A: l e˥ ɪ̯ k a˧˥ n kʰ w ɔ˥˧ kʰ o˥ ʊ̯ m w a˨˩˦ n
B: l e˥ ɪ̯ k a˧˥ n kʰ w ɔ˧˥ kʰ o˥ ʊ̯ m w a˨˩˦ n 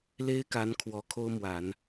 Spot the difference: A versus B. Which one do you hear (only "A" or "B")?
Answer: B